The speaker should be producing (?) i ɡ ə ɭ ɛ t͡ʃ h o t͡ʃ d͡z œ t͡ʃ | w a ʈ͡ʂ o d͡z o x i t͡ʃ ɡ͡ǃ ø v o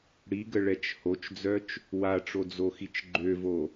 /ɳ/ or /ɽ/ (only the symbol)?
ɽ